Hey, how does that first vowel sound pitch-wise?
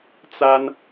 high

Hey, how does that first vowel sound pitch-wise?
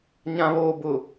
low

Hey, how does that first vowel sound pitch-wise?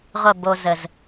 falling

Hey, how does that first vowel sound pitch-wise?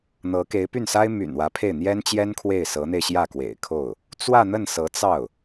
rising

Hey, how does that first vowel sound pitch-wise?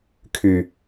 low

